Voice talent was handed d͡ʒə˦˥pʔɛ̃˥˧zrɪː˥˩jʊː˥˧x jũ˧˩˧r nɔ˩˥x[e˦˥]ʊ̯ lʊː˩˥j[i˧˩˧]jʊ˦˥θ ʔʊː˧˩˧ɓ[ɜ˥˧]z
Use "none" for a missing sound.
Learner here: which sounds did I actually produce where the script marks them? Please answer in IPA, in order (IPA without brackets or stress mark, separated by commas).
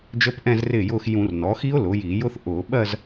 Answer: i˦˥, i˧˩˧, ɜ˥˧